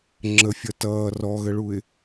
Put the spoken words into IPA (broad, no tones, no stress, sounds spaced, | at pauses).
ŋ͡ǁ ə fʲ ʌ t ʌː r ɔ ɣ ə ɭ u ɪ̯